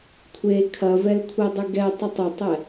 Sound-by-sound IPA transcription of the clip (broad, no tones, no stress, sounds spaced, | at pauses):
kʷʰ e kʰ ɐ v ɛ l kʷʰ e dˤ ɨ ɡ ɛ tˤ ɨ tˤ ɐ tˤ ɛ